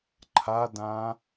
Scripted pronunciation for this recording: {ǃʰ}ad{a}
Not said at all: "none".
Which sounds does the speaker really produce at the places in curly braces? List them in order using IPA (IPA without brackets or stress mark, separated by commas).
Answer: ǃʰ, ã